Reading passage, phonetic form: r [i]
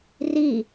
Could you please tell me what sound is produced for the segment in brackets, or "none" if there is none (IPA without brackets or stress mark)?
i